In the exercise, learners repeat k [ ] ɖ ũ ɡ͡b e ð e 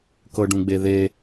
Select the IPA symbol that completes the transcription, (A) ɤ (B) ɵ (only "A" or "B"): A